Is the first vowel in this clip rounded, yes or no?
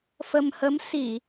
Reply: no